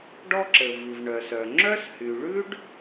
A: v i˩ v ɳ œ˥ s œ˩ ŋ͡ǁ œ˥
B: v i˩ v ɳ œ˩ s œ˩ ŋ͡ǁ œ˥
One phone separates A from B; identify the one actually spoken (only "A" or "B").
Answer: B